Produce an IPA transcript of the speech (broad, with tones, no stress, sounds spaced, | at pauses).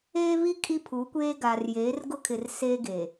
eː˦ β i˦ kʼ i˦ pʰ u˨˦ kʷ eː˦ ɡ aː˨ r j eː˨˦ r ɡ ʊ˦ kʰ ɪ˨ r s eː˦ ɡ eː˨